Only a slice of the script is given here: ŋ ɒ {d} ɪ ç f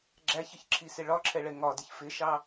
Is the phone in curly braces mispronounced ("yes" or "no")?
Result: no